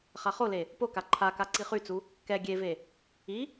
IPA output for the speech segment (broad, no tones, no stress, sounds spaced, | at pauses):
χ a χ o l e | p o k a ǃʰ a k a ǀ i χ y t͡s u | k ɛ ɡʲ e v e | i